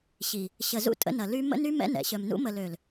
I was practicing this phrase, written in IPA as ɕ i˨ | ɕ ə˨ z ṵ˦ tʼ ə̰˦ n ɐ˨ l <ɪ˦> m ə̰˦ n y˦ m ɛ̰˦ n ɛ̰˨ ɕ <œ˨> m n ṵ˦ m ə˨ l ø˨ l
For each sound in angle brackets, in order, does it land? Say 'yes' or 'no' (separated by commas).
no, yes